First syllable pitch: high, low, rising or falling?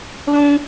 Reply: high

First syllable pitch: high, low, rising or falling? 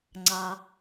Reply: low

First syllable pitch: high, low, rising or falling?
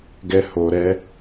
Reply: high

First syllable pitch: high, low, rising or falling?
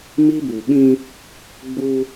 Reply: high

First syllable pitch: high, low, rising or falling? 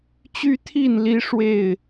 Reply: high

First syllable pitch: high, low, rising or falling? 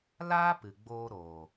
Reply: high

